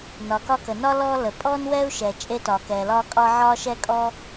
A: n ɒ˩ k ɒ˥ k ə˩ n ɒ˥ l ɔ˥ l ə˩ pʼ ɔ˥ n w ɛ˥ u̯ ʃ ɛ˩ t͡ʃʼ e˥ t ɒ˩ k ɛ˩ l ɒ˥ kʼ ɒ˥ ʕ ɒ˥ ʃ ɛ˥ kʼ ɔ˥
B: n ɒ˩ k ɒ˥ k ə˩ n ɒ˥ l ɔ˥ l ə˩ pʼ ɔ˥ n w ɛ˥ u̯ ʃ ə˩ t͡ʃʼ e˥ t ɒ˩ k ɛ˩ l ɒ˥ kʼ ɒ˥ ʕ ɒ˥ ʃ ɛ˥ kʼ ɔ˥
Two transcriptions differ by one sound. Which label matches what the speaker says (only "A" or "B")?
A